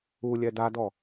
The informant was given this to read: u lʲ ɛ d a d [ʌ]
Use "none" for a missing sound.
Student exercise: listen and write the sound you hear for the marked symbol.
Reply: ɔ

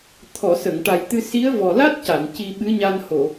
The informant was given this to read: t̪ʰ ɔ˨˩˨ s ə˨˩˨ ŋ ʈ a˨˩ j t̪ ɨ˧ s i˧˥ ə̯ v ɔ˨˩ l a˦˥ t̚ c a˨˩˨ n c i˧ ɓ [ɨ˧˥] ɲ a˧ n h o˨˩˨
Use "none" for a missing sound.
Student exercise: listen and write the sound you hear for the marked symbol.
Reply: ɨ˧˥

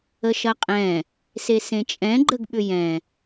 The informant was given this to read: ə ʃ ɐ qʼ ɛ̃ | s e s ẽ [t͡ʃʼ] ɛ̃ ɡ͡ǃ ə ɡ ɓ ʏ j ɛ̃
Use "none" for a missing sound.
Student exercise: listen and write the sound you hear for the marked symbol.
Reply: t͡ʃʼ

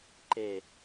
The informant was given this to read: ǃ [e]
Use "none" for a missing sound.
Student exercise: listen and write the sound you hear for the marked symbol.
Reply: e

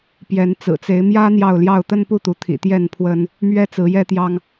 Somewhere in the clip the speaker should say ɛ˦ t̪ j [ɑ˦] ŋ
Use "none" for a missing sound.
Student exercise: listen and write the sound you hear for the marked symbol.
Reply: ɑ˦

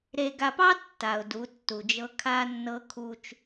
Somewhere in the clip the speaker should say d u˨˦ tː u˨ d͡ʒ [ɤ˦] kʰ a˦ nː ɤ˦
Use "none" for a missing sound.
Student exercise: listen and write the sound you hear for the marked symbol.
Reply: ɤ˦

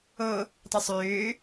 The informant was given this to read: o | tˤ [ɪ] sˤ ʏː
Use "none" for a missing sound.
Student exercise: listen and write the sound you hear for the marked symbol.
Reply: ɪ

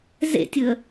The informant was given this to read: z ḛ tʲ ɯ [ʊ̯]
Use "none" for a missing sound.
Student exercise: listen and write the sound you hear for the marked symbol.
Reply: ə̯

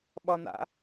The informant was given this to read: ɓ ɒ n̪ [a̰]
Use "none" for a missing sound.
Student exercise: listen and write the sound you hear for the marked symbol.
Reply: a̰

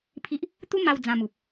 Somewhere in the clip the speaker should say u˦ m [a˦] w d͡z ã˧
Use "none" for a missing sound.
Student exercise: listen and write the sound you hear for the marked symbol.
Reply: a˧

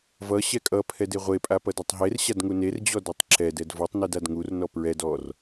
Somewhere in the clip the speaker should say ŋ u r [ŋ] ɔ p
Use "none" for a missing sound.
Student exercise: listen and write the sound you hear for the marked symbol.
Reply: n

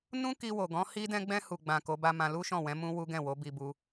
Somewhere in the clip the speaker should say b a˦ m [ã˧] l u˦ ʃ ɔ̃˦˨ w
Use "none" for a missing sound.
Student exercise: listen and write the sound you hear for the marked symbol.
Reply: ã˧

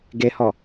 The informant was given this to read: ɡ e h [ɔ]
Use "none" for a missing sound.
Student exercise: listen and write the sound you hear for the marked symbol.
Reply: ɔ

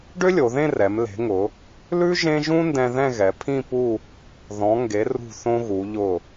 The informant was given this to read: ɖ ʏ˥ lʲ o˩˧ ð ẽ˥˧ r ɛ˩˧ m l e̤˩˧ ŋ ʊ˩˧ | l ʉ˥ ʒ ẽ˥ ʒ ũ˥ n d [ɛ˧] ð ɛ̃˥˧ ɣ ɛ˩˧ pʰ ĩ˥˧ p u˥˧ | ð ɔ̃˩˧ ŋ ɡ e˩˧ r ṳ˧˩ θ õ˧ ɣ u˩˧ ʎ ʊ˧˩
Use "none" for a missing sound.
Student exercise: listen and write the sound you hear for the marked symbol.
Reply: ɛ̃˧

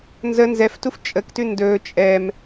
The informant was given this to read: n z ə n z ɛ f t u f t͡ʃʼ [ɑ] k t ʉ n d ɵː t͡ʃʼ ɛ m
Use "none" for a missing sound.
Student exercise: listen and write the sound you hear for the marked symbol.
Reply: ə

